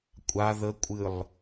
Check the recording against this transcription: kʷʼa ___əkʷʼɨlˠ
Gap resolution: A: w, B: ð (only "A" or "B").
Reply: B